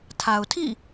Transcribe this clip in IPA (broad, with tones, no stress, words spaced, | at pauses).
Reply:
tʰa˨ʊ̯tʰḭ˦˨